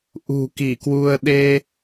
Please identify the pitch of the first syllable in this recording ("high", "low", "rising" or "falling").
low